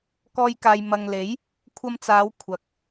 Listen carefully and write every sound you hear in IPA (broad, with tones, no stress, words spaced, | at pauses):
kɔː˧jkaː˨jmɐ˨ŋle˨˥j | kʷʰɐ˧mt͡saː˨˧w kʷʰɐ˨k̚